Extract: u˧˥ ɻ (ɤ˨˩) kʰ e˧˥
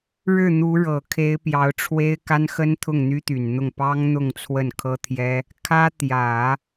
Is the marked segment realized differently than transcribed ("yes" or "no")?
no